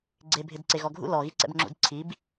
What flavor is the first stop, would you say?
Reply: click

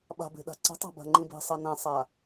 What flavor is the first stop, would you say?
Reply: implosive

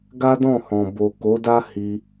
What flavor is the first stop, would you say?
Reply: plain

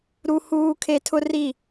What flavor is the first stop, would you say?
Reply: aspirated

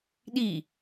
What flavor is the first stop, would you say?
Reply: implosive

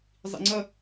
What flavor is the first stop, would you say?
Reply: click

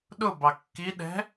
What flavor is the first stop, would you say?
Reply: implosive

